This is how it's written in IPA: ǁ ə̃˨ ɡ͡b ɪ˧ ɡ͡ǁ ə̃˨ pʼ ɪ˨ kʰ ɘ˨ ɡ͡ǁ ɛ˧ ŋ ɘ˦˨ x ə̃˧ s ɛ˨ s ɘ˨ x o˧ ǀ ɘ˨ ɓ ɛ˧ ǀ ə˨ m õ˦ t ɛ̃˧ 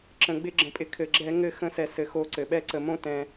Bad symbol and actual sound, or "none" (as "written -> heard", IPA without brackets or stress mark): none